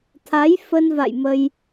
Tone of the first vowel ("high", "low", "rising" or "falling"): rising